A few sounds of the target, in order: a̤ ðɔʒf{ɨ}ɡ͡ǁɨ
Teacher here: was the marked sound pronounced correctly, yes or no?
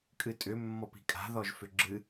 no